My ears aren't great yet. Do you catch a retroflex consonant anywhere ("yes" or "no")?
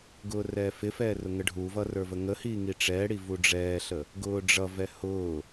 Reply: yes